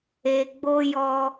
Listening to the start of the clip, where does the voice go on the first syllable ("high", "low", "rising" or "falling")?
low